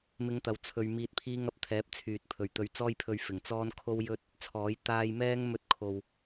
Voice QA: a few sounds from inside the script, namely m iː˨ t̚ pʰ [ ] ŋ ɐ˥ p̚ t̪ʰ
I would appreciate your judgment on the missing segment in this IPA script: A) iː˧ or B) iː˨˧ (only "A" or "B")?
A